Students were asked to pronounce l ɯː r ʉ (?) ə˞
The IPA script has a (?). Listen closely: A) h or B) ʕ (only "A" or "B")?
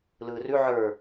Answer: B